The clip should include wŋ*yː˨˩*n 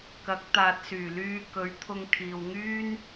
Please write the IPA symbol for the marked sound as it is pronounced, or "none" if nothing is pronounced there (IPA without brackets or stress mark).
yː˥